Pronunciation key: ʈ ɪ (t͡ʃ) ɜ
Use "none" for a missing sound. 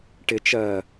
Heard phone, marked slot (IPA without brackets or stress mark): t͡ʃ